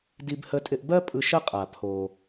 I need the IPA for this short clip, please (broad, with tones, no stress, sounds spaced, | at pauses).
d i˧ b h ə˧ tʼ ɪ˧ ʔ b ɜ˥ pʼ ɯ˧ ʃ ə˥ qʼ a˩ pʰ o˩